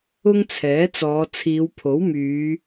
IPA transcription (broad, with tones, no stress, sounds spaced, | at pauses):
ʊ˥ ŋ t͡sʰ ɛː˨˥ t͡s ɔː˨˧ t͡sʰ iː˨˧ w pʰ o˨˥ w m yː˨˧